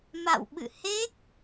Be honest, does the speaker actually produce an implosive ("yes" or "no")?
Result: yes